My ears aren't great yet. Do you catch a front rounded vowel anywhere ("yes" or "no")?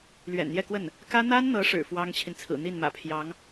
no